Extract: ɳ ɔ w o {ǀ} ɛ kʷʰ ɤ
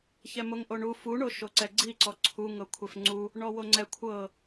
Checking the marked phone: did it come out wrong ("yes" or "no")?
yes